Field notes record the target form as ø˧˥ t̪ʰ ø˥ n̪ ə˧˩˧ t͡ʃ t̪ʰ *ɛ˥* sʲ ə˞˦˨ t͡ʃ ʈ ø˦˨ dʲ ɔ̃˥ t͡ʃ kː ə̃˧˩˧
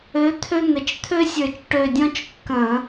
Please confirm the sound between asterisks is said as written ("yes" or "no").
no